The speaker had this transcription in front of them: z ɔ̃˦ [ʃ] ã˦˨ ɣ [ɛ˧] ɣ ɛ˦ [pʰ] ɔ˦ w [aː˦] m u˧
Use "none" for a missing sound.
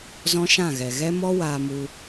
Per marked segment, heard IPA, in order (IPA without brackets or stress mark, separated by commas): ʃ, ɛ˨, m, aː˧